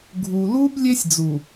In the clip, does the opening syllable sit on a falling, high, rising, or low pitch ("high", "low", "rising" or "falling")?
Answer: low